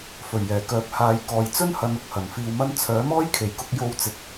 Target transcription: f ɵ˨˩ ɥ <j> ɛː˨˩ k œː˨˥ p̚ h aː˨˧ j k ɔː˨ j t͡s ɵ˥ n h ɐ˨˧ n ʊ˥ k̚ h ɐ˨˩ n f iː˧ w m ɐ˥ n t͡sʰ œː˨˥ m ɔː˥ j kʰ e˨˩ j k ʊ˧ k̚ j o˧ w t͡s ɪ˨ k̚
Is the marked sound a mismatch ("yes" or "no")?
no